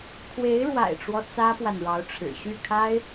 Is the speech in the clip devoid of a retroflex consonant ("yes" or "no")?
no